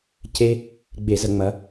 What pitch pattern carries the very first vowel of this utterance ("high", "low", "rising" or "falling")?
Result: high